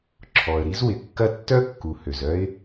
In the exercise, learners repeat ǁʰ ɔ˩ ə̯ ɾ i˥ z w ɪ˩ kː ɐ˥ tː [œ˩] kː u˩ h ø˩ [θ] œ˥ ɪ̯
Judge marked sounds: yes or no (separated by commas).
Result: no, no